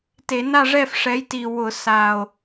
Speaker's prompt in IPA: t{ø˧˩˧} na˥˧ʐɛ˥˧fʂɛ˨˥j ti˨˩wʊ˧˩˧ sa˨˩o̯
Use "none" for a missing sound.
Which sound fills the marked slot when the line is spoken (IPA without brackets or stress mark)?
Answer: e˧˩˧